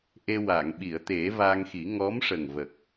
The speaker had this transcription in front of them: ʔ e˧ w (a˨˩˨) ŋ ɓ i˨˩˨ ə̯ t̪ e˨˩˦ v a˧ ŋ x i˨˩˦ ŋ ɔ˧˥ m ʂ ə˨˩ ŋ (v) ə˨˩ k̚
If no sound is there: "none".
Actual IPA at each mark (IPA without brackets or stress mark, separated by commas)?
a˨˩˨, v